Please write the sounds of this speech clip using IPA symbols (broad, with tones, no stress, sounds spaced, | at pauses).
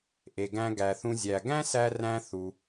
ʔ e˩ ɡ æ̃˧ ɡ æ˩ θ ũ˧ zʲ æ˩ ɡ æ̃˥ s æ˧ r æ̃˧ θ u˩